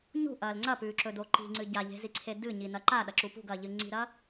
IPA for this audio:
ɲ ṳ ʔ ɐː l ŋ͡ǀ ɐ p ʉː ǁ ɵ d o ǃ i̤ ŋ͡ǀ ɨ ɟ a ʎ e̤ z i ǀʰ e d ɨ ɲ i n ɐ ǃ a ɗ ɐ ǁ u p ṳ ɡ ɐː ʎ ɨ ŋ͡ǀ i̤ ɾ ɐ

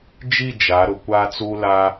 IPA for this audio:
d͡ʒ i˦˨ d͡ʒ a˨˦ ɾ ʊ˨ kʷ a˦ t͡s u˦ l a˦

